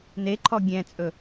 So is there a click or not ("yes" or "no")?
yes